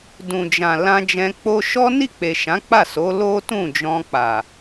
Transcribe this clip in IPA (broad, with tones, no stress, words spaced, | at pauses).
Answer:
dũ˨d͡ʒã˨ lã˧d͡ʒɛ̃˧ k͡po˧ʃɔ˦ni˦˨k͡pe˨ ʃã˨˦k͡pa˦˨so˨˦ lo˦tũ˦˨d͡ʒɔ̃˧ k͡pa˨